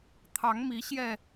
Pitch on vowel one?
rising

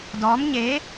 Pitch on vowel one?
rising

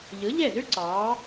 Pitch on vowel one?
rising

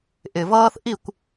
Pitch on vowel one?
low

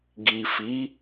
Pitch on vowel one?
low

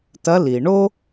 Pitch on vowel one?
rising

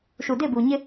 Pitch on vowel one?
low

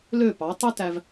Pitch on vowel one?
falling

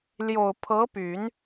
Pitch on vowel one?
low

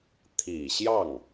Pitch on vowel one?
low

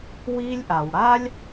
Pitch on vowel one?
high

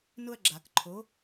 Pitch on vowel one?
high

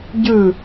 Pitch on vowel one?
falling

